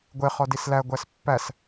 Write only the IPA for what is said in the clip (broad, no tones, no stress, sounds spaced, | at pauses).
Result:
ɡʷ e χ ɔ d i s l æ ɡʷ æ s pː æ s